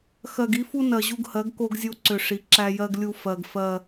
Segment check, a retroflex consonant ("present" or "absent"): present